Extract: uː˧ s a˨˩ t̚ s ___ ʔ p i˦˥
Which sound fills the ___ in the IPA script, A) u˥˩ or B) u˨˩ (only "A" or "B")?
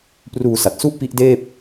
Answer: A